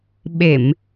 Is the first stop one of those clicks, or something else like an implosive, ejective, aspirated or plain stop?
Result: implosive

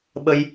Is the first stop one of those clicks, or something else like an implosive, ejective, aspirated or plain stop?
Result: implosive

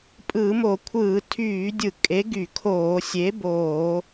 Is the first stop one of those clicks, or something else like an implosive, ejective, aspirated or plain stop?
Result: ejective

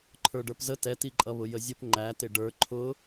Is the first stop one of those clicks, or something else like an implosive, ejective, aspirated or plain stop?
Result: click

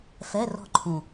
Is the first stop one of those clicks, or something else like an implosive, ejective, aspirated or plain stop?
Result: click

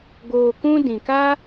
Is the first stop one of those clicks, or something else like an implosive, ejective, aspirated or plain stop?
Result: plain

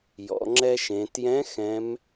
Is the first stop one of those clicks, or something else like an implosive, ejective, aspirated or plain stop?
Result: click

